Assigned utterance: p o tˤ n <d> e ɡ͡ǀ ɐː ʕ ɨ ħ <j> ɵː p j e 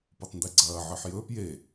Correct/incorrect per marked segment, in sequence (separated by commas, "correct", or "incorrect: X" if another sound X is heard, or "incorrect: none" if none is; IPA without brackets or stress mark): correct, correct